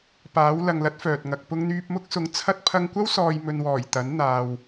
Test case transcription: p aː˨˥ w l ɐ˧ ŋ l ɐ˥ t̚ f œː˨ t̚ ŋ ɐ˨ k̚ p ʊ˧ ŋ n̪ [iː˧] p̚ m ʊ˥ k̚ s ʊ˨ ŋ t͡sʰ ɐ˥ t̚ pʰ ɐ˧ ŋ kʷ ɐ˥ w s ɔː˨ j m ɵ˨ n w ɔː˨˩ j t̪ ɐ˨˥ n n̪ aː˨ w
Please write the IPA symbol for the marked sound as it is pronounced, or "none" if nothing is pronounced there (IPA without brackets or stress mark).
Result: yː˧